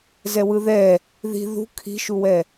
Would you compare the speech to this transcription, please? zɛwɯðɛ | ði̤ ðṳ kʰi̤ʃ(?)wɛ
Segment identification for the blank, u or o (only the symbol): u